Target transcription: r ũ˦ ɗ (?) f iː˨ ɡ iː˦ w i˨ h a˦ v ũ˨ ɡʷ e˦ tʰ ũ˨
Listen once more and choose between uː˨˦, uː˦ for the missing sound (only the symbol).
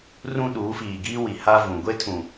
uː˨˦